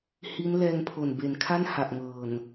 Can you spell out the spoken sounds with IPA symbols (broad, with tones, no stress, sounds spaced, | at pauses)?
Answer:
h i˦˥ n l ɛː˧ ŋ pʰ o˨˩ n b e˩˦ n kʰ a˥˩ n h a˨˩ ʔ ŋ ɤː˨˩ n